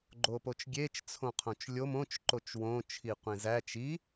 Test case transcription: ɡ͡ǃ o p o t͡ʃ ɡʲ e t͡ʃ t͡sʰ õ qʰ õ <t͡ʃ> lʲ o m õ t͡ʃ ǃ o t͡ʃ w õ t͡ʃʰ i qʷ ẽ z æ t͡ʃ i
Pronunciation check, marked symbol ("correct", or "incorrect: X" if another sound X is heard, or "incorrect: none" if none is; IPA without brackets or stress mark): correct